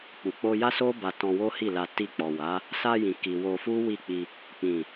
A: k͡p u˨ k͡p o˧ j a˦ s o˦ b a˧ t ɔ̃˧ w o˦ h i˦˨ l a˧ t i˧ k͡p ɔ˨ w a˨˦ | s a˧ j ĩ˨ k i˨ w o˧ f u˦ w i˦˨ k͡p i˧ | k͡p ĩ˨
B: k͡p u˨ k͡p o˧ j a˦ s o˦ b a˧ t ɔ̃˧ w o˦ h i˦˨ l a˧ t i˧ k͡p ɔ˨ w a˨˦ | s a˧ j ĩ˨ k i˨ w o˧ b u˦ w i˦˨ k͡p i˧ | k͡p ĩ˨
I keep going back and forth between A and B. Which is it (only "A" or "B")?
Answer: A